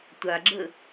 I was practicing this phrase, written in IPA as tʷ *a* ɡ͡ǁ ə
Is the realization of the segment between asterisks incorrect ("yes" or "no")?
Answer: no